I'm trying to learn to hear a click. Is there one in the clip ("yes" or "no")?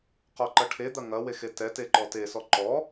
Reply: yes